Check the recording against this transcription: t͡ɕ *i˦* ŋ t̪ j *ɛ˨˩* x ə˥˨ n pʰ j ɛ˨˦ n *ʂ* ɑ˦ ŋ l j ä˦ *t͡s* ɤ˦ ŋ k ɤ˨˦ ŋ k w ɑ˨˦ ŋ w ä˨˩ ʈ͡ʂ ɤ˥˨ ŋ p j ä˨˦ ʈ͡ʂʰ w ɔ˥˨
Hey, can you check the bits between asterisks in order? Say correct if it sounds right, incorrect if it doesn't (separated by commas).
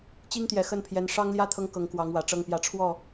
correct, correct, correct, incorrect